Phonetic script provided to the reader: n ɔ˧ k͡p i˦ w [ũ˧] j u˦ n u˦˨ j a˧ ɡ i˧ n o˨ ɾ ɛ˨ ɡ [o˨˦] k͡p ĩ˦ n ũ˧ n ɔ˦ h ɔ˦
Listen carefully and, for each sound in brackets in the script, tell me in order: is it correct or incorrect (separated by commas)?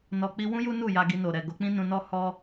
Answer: incorrect, correct